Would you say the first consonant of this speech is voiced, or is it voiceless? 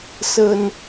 voiceless